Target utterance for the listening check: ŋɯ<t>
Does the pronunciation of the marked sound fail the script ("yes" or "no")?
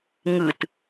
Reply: no